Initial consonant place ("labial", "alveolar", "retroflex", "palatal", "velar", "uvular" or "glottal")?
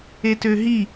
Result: alveolar